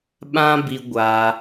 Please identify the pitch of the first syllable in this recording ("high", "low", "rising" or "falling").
high